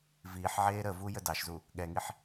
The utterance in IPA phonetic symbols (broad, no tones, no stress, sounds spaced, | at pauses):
v iː ħ ʕ eː ɾ ə v u j ə d ɑ ʃ z u | ɠ ɛ ŋ i ħ